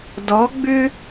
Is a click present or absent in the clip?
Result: absent